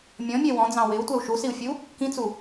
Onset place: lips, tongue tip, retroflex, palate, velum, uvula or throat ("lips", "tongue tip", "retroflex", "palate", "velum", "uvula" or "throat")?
lips